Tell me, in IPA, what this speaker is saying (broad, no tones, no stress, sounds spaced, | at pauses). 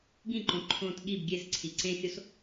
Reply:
ɡ ĩ ǃ õ ǃʰ õ t ɠ i b ɡʲ e s ǀʰ i ǀ ẽ xʲ o s